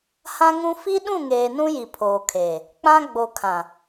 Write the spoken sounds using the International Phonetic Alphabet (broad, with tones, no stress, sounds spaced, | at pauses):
h ã˦ ŋ ũ˦ f i˦ ɗ ũ˦˨ ŋ eː˨ n ũ˦ j i˨ pʰ oː˨ kʰ eː˨ | k͡p ã˦ ɡ͡b o˨ kʰ ã˨